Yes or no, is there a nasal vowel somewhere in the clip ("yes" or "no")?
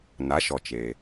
no